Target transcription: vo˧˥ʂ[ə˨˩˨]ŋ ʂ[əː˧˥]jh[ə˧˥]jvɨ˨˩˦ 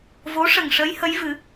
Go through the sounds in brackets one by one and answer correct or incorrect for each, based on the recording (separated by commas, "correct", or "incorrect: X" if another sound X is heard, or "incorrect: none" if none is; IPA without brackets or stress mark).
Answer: incorrect: ə˨˩, correct, correct